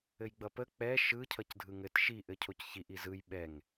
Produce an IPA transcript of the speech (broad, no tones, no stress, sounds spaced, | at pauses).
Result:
ɘ j ɡ͡b ʌ p ə k͡p ɛ ʃ ɯ cʰ ʌ c dʱ ɯ ŋ ɘ t ʃ i ʔ ɘ cʰ o c ç i ʔ i z ɯ j ɓ ɛ ŋ